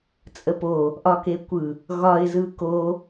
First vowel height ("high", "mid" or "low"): mid